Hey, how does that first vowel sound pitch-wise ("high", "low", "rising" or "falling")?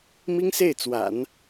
high